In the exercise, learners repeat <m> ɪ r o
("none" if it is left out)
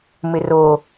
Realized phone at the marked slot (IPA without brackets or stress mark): m